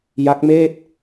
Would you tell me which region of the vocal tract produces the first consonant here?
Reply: palate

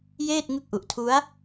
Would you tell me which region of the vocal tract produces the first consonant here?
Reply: palate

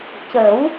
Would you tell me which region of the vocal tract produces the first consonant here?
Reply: palate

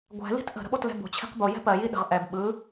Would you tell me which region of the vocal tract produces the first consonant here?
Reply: velum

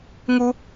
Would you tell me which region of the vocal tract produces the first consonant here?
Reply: velum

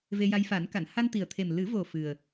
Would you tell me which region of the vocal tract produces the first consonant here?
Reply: lips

